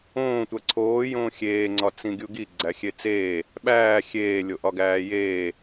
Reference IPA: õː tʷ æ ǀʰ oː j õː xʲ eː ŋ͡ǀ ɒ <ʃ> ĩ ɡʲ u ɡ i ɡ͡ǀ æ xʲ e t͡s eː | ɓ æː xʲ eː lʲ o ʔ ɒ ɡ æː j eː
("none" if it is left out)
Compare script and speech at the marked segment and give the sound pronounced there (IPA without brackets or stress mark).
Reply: t͡s